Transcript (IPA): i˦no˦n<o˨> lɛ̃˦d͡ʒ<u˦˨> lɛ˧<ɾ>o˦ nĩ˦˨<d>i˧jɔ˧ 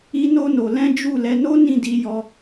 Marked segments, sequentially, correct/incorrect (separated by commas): incorrect, correct, incorrect, correct